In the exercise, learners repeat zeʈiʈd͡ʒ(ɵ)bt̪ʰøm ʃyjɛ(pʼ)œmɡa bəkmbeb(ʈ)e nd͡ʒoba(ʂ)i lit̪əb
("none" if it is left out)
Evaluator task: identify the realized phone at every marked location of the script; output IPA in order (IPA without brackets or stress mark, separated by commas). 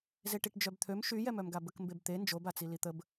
œ, m, t̪, t͡s